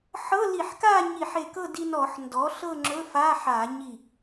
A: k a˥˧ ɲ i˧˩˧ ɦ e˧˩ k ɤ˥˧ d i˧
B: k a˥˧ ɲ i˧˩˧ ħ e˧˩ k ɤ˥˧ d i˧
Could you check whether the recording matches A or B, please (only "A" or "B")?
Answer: B